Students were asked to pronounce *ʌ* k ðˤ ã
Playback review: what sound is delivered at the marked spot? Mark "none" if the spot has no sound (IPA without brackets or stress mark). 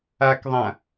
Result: a